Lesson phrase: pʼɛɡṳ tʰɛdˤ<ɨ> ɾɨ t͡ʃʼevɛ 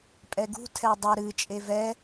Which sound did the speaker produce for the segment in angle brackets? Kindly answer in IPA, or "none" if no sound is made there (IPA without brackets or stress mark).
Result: ə